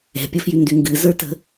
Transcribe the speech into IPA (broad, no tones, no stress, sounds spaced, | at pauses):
ɛ̤ pʲ ʌ f j y n d y ŋ ɡ ɨ z ə˞ t ə̤